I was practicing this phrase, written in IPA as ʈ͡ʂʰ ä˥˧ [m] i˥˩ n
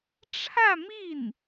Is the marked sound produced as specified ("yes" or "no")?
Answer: yes